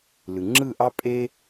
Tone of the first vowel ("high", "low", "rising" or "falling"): low